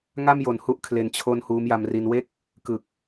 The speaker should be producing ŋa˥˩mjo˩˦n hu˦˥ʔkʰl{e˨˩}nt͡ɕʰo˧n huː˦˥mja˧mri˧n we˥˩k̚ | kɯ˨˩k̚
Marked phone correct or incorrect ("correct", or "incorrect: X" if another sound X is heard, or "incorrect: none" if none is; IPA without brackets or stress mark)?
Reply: correct